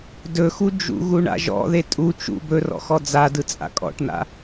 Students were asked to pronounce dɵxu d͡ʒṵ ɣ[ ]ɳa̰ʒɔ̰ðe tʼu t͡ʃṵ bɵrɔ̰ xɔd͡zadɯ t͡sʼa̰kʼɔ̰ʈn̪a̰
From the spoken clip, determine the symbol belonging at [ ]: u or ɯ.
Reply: u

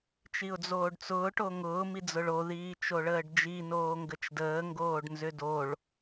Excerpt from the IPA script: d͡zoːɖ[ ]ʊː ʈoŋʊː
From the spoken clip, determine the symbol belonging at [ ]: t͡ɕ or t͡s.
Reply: t͡s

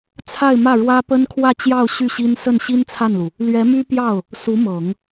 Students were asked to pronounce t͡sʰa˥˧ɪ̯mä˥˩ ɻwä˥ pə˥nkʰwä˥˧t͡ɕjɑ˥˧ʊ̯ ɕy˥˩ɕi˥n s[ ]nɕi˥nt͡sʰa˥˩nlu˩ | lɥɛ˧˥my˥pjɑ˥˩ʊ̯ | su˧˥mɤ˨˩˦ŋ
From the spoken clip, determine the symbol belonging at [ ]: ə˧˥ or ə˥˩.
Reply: ə˥˩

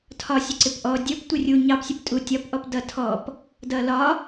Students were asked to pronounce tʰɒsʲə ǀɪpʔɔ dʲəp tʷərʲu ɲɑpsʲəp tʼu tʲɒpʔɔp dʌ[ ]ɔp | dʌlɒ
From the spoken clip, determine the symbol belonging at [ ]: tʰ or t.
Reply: tʰ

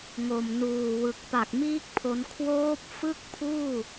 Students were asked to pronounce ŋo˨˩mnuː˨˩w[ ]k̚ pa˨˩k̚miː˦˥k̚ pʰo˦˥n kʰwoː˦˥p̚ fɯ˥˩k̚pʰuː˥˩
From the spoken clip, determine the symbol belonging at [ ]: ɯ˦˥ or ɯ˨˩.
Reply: ɯ˨˩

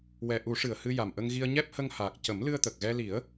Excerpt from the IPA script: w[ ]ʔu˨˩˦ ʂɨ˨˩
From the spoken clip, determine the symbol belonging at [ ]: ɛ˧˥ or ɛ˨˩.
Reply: ɛ˨˩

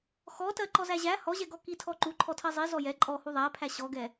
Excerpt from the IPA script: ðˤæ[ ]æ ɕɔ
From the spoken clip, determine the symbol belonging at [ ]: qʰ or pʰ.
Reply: pʰ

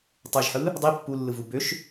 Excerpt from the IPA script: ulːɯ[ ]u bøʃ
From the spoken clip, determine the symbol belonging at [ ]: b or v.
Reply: v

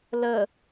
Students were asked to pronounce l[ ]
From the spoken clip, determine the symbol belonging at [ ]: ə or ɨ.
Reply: ə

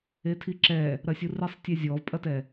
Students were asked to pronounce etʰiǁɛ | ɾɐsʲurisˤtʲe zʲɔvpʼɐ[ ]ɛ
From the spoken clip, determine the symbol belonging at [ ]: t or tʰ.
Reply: t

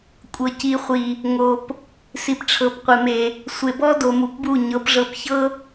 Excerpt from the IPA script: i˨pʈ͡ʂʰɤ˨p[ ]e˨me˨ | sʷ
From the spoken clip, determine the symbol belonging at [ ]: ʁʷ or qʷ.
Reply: qʷ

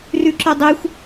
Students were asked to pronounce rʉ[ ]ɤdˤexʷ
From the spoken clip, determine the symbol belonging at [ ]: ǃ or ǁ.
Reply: ǁ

